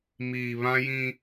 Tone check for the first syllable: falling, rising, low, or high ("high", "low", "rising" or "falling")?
low